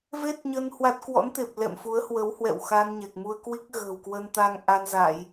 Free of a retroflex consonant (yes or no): yes